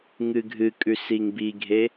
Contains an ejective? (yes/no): yes